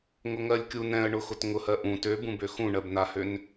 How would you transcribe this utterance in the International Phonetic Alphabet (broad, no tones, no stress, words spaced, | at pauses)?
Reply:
ŋʊŋɜlʲkʲu nɛ̃ə̯ɳʊxʊt ŋʊhɜ ʔũ tøbũbø xũɳɜbnahøn